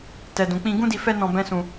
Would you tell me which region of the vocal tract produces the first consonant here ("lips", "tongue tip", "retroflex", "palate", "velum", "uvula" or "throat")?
tongue tip